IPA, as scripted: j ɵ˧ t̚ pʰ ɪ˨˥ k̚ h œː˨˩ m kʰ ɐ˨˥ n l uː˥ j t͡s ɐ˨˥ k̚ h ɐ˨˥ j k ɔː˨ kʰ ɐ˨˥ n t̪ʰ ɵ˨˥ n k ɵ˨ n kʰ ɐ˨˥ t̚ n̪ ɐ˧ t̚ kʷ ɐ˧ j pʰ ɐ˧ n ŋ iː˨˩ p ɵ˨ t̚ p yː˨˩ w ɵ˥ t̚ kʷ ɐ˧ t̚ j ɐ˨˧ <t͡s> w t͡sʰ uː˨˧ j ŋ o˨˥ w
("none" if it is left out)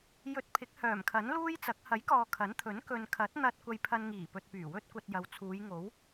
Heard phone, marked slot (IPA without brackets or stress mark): none